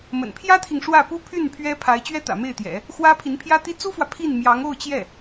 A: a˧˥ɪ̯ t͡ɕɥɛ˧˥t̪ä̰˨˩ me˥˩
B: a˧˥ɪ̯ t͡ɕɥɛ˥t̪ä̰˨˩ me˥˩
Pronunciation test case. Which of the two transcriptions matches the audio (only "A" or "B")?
B